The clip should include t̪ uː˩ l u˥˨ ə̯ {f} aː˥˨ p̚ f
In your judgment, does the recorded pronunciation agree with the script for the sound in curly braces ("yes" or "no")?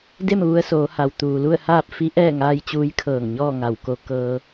no